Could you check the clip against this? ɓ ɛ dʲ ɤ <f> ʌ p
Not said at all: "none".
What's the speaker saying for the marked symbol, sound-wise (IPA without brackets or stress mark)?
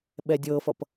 f